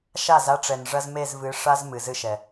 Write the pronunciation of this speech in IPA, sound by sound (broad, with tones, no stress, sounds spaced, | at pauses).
ʃ a˦˨ z a˦ ʈ͡ʂ ɛ˨ n ʐ ɐ˦ z m e˦˨ z v ɨ˨˦ ʂ a˦ z m ɨ˨ z ɨ˦ ʃ ɛ˨